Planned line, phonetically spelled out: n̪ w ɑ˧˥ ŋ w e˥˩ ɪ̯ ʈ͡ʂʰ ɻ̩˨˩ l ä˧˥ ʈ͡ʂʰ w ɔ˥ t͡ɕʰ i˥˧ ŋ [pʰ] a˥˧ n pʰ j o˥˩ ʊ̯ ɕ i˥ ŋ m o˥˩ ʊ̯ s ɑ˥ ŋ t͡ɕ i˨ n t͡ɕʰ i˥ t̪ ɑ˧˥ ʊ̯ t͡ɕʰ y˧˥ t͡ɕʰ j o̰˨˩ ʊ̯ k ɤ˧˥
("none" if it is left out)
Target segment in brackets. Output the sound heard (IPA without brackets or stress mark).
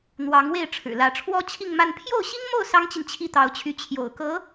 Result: m